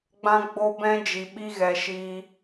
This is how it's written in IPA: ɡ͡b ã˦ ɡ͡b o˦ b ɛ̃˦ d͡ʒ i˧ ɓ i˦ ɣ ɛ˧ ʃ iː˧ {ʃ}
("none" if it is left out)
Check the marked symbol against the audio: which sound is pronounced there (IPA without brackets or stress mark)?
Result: none